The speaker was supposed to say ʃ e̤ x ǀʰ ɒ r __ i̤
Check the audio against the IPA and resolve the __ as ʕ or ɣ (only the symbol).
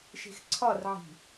ʕ